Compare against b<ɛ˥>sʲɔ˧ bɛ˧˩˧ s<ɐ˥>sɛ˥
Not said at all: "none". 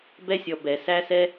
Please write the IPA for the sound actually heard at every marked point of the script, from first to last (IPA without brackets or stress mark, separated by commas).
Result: ɛ˥, æ˥